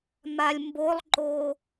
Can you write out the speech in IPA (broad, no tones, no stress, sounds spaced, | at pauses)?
m a lʲ m b o lˠ ǃ o